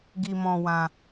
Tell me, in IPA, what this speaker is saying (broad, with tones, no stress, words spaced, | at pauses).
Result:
ɡi˧mɔ̃˧wã˧